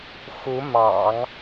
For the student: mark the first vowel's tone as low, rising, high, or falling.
rising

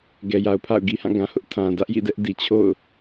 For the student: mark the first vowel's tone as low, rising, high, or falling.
low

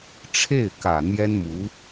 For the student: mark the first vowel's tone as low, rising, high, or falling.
falling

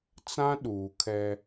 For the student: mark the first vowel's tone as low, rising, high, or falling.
high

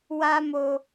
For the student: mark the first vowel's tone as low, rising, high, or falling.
high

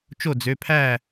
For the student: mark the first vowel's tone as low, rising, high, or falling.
falling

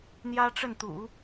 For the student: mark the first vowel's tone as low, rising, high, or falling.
high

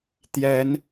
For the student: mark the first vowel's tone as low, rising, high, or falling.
rising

